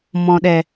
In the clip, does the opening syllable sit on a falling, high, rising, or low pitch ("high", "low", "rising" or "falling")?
low